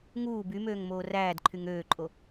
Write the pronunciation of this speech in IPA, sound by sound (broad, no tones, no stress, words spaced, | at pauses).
ŋuː bymøːŋmoː ræːdǃʰyŋ øːǃʼo